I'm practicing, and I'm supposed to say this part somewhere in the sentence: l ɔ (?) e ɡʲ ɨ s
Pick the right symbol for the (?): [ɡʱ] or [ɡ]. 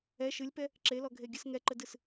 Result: ɡʱ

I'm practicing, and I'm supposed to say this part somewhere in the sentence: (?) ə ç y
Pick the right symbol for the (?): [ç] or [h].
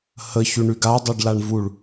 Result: h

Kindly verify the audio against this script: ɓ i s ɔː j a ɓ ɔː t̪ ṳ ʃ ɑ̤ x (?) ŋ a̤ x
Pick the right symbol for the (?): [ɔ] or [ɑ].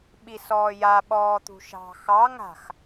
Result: ɑ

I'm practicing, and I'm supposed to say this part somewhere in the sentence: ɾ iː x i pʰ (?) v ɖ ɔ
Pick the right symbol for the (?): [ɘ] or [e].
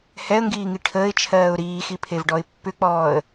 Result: e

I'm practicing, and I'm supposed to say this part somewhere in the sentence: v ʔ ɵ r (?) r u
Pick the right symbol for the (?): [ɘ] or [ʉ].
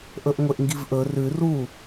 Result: ʉ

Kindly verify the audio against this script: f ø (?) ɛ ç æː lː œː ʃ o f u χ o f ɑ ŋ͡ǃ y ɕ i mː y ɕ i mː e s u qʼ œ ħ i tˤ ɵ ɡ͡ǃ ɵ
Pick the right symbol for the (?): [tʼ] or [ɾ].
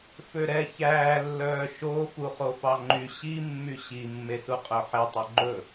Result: ɾ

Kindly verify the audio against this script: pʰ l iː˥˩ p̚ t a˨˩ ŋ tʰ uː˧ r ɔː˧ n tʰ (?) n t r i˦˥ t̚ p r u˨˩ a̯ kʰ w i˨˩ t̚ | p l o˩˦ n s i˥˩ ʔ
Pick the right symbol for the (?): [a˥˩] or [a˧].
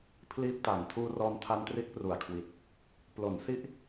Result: a˧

